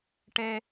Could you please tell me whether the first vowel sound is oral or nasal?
oral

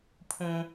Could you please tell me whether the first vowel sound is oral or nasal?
nasal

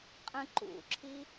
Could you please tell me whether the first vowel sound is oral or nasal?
nasal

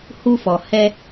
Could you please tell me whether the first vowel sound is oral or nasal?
oral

